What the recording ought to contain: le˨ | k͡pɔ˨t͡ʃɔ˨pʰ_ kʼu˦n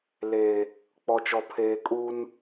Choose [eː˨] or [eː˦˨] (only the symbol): eː˨